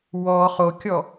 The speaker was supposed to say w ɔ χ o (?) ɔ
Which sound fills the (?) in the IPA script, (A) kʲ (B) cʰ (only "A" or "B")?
A